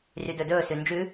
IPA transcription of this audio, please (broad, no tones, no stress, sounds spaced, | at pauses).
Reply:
r y d ɵ d ɵː s ʉ n d͡ʒ ʉ